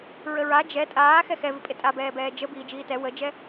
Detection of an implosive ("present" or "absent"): absent